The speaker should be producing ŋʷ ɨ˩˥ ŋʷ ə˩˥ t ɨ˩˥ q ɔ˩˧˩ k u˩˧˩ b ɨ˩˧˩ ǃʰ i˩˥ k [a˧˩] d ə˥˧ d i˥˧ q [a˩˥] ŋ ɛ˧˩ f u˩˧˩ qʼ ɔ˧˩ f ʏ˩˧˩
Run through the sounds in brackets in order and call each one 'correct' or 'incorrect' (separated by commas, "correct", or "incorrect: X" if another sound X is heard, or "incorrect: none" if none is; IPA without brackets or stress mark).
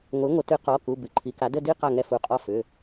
incorrect: a˩˥, incorrect: a˧˩